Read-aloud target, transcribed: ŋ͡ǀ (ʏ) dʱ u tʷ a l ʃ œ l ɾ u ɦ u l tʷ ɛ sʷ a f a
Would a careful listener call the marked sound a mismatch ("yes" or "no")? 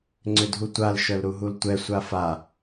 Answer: no